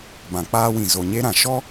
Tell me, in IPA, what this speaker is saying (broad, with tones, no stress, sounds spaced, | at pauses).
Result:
b ã˨ k͡p aː˦ w ĩ˨ z o˨ ɲ e˦ ɾ ã˨ ʃ ɔ˦